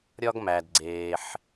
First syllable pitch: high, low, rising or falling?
high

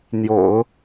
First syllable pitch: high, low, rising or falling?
low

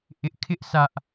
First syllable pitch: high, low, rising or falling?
high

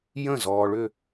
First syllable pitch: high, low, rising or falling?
falling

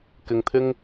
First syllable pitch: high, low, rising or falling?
low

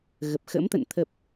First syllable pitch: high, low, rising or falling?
low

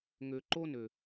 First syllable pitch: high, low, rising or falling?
low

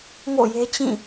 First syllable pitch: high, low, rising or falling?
falling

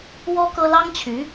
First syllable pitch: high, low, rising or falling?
high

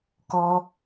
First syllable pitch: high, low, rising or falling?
high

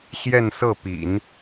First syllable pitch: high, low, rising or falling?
falling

